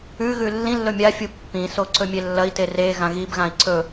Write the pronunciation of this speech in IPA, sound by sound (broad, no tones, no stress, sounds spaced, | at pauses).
ʉ ɣ ʉ lː ĩ lː ɵ mʲ a fʲ u pː ĩ s o ǀ ɵ mʲ e lː ɐ i̯ t e r e ɣ ã ɣ i b ɣ ã i̯ ǀ ɵ